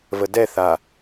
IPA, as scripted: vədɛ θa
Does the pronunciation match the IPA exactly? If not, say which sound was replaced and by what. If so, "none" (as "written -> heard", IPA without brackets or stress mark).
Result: none